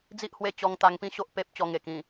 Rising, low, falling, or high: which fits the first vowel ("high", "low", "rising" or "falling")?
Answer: high